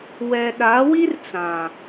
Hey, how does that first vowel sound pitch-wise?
low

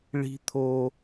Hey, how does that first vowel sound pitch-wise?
high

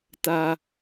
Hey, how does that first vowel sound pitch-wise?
low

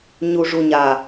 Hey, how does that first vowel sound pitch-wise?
low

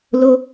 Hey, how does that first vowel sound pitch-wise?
high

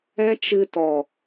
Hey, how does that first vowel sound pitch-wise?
high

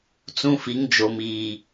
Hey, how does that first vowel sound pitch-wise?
high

